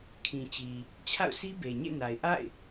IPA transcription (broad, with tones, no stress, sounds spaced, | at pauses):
kʰ ĩ˨ t͡ɕ i˨ | t͡ɕʰ a̰˦˨ ʊ̯ sʰ i˦ b e˨ ɲ ḛ˦˨ n a˨ ɪ̯ ʔ a̰˦˨ ɪ̯